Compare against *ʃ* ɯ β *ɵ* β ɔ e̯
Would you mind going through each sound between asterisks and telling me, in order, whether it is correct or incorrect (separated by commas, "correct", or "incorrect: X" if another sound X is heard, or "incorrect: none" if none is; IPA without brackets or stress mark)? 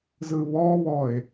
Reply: incorrect: z, incorrect: ɔ